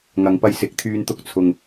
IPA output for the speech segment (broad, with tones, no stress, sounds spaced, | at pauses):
ŋ ɐ˨˧ ŋ p ɐ˧ j s ɪ˨˥ k̚ t̪ʰ yː˧ n t̪ ʊ˧ k̚ t͡sʰ ʊ˨ ŋ